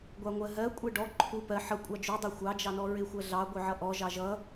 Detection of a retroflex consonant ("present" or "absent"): present